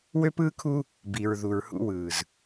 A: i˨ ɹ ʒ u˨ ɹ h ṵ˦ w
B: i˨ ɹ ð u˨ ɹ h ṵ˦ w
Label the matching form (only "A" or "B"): B